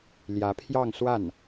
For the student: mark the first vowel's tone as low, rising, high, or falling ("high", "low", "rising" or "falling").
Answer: rising